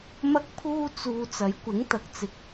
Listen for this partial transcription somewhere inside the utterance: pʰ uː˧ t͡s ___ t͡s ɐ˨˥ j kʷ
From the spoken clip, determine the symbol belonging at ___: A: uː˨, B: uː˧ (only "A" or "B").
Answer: A